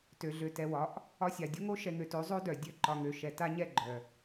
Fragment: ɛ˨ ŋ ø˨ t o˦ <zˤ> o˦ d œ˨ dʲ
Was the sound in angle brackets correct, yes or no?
yes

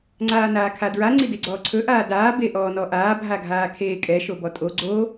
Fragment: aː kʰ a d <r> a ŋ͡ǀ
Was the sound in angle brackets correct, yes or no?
no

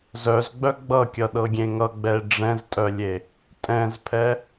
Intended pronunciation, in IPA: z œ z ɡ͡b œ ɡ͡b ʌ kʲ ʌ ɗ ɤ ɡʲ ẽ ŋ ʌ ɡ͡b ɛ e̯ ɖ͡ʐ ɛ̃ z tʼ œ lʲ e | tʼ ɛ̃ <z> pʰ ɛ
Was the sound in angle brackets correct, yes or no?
yes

